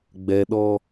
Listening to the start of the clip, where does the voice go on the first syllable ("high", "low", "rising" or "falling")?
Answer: low